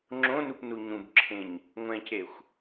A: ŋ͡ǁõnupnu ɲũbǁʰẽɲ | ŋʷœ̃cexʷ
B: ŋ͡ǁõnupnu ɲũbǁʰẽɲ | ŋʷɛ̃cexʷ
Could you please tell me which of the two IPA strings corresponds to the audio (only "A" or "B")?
B